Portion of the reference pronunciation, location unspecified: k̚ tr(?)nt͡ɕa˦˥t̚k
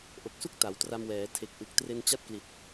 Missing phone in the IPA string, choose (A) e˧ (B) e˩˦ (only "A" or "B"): A